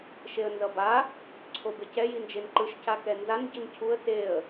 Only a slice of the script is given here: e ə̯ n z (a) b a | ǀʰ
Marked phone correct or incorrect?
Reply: incorrect